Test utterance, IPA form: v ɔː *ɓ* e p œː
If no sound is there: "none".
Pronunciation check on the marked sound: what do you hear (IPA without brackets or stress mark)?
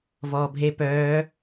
bʱ